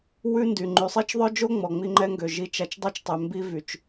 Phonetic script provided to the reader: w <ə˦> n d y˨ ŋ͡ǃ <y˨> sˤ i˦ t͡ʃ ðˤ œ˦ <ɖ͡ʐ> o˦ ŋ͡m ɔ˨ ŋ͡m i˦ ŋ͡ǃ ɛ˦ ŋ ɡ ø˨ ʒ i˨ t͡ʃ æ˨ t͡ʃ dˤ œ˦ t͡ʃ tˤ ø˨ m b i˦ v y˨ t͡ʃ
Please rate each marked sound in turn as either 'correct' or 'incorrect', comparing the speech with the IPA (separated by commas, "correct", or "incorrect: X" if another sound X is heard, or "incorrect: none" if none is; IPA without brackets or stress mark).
incorrect: ʉ˦, correct, incorrect: d͡ʒ